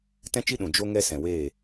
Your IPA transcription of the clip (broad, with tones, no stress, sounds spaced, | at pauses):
t ɛ̃˦ t͡ʃ i˦ ɗ ũ˨ d͡ʒ o˦ ŋ ɛ˦ s ɛ̃˨ w eː˦˨